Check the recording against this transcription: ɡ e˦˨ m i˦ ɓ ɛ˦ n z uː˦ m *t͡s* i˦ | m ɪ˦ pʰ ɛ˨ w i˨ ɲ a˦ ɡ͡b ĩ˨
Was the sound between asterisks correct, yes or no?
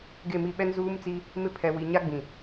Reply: yes